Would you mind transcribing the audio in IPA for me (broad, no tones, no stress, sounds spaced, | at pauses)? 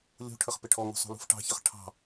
lʲ ṳ ʈʰ ə χ p ɪ ʈʰ ɔ ŋ ṳ sˤ ṳ l ṳ f ʈ ɑ̤ ç ə χ ʈʰ ɑ̤